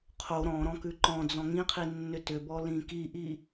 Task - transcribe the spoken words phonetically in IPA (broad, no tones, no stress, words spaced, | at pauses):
qʰo ɾɔ̃ɾɔ̃kʉ ǃɔ̃ d͡zɔ̃ŋĩqʰinːʏ tʏbɔlĩ kiʔi